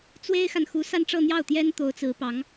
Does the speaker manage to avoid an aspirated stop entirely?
yes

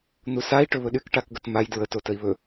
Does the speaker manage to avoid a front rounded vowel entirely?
no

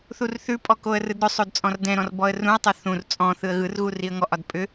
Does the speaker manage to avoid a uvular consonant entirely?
yes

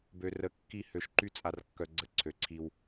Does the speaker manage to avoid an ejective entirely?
no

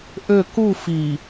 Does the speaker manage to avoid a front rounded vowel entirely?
no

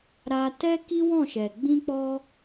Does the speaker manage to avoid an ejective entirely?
yes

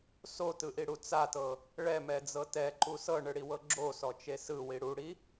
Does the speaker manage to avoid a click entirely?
no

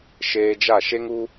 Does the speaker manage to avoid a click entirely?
yes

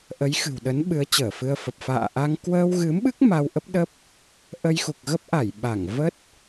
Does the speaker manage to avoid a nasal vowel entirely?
yes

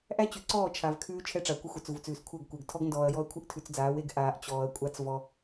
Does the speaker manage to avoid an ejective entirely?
no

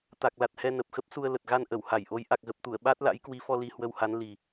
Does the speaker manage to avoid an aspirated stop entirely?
yes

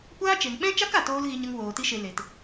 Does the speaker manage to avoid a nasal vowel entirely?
no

